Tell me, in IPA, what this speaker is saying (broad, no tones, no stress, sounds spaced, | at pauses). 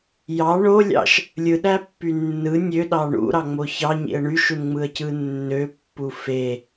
j ɑ ɳ o lʲ ɑ̰ ʃ | lʲ ɯ ɗ æ pː y nː ɯ nʲ ø ɗ ɑ ɳ ṵ ɾ ɑ ŋ͡m o ç ɑ ɲ ḭ ə̯ ɳ y ʃ u n ŋ͡m ɯ ə̯ c ɯ nː ø pː u f e